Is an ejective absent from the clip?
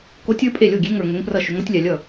no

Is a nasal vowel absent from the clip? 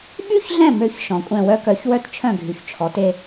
no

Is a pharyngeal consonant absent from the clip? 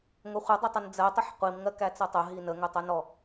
no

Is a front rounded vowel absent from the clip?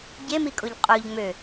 no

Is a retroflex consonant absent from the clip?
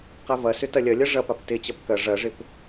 no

